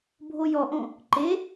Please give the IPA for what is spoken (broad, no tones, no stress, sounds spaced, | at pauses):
bʱ o j ɔ ʔ õ | ǃ e